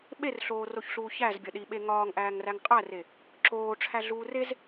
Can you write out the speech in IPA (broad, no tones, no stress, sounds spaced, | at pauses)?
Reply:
ɓ e r ɬ oː r o ç ɬ uː ç æ z bʲ ɒ ɗ i ɓ e ŋ ɒː ŋ ʔ æː ŋ r æ ŋ qʼ æ r e | ǁ oː ʈ͡ʂʰ æ ɮ uː r e z